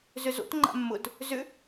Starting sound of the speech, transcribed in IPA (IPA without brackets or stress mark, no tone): z